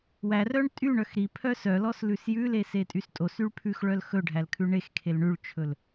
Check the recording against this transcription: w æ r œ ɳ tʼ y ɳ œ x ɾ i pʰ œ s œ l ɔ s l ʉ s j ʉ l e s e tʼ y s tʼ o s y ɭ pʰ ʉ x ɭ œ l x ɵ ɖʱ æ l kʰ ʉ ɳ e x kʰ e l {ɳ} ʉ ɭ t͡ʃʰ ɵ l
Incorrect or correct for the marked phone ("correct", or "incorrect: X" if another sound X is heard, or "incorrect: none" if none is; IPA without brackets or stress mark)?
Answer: correct